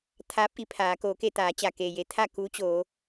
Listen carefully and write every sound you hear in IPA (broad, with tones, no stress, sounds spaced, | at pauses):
t̪ʰ aː˧˥ p̚ ʔ i˩˧ pʰ aː˩˧ k oː˩˧ k e˥˨ t̪ aː˩˧ t͡ɕ a˩ k eː˩ j e˩˧ t̪ʰ a˥˨ k u˧˥ t͡ɕ oː˩˧